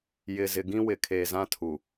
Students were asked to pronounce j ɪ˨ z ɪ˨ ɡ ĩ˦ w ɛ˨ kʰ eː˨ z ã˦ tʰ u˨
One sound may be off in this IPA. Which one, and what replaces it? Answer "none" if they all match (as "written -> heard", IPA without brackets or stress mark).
ɛ˨ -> ɪ˨